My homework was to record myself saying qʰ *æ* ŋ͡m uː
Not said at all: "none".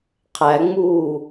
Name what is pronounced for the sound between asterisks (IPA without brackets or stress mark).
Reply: æ